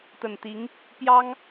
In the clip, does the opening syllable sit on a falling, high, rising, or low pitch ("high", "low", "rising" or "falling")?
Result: low